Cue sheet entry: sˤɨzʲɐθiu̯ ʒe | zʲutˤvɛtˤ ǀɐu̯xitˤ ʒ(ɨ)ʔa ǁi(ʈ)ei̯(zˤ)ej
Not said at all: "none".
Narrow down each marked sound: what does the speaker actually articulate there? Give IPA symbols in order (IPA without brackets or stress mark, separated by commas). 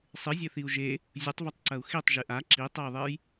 ɨ, tˤ, ðˤ